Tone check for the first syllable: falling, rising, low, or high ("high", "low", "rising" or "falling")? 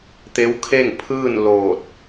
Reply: rising